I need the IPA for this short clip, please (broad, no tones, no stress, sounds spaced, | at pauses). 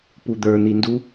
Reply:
p u d̪ ə˞ n̪ i n d u